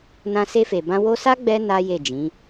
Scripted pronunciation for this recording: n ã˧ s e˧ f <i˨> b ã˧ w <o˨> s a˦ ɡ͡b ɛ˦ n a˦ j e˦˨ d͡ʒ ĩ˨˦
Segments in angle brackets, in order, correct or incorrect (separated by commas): incorrect, incorrect